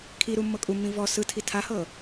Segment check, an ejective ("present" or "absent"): present